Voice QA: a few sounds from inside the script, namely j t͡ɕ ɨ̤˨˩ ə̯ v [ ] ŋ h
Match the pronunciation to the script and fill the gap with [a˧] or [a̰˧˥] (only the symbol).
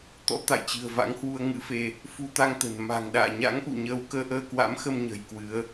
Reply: a̰˧˥